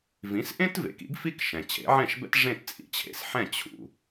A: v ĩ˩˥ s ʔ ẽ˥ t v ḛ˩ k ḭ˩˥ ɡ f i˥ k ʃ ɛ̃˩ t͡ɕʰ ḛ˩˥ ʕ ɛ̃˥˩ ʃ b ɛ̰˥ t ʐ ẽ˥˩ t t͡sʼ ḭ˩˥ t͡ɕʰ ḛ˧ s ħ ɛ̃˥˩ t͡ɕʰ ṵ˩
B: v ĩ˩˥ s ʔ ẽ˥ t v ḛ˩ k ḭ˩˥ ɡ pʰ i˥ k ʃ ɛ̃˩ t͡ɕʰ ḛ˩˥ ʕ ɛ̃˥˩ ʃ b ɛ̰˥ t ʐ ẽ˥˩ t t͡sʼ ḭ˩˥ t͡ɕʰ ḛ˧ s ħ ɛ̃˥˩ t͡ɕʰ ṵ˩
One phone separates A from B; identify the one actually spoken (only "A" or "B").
A